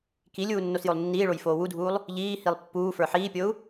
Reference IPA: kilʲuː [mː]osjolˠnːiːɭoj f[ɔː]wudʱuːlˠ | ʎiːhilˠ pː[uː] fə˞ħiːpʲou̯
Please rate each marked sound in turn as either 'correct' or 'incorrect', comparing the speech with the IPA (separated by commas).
incorrect, incorrect, correct